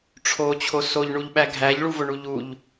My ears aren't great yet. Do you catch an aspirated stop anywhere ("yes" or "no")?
yes